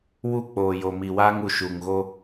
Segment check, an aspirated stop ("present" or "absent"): absent